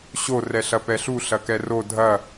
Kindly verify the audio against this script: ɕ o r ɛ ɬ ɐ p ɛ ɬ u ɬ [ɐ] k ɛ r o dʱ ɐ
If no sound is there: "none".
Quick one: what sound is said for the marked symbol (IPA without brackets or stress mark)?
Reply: ɐ